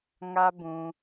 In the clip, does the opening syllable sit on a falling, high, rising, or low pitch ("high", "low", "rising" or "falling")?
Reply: high